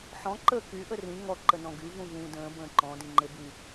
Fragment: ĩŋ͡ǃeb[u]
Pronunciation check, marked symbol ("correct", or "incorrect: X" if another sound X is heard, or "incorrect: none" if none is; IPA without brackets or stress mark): incorrect: y